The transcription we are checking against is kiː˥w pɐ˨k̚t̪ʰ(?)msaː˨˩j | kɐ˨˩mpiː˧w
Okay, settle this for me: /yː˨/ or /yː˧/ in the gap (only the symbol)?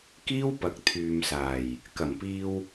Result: yː˨